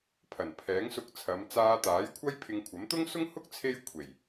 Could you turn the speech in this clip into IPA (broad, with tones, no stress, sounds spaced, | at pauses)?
pʰ ɐ˨˩ n pʰ ɛː˨˥ ŋ s ʊ˧ k̚ t͡sʰ ɐ˨˧ m t͡s aː˧ t̪ aː˨˥ j kʷʰ ɐ˥ j pʰ ɪ˧ ŋ kʷʰ ɐ˨˥ m t̪ ʊ˥ ŋ s ʊ˥ ŋ h ʊ˥ k̚ t͡sʰ e˥ j kʷʰ e˨˩ j